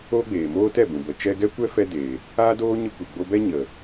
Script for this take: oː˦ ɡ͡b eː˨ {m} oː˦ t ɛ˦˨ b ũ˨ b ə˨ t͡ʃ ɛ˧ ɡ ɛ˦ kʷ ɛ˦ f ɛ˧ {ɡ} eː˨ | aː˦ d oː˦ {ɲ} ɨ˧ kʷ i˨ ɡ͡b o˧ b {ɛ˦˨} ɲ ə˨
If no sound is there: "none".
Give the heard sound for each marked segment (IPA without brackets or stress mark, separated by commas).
m, d, ɲ, ɛ˦